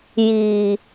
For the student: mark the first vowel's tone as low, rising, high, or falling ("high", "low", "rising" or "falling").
low